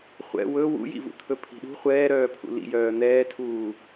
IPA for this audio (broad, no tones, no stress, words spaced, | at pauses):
χʷɛ̰ wɵ wṵjḭvṵt̪ʰɵ pʰi̤ɗṳ χʷɛːɾœːpʰṵ lḭjœː n̪ɛːtʰuː